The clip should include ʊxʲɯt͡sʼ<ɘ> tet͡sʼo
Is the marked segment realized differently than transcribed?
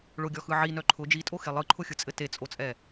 no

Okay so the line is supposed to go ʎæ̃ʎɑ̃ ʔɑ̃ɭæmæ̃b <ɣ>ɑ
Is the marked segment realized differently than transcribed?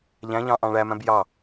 yes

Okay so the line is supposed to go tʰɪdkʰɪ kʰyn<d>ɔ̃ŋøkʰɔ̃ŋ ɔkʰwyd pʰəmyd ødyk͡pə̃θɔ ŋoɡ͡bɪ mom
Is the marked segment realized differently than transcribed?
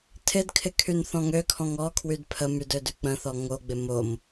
yes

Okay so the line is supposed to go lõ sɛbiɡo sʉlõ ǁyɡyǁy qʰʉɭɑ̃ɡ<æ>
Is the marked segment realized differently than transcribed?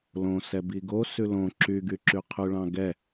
yes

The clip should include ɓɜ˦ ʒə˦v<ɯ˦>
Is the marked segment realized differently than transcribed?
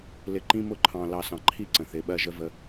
yes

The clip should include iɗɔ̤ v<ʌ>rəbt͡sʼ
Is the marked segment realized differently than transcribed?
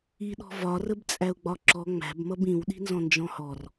yes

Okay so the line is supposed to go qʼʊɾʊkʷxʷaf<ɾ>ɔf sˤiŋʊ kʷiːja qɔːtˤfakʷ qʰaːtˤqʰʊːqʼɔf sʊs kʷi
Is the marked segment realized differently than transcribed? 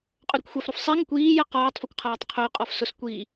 no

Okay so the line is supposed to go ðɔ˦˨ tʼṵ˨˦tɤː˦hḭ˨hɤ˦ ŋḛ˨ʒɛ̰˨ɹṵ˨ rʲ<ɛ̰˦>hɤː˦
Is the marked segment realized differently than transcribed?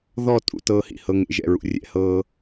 no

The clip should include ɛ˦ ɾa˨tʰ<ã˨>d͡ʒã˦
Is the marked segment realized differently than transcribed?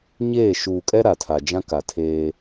yes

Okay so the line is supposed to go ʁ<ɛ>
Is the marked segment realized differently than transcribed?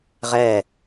no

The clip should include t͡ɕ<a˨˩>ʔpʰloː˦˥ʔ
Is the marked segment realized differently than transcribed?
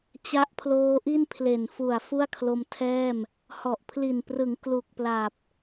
yes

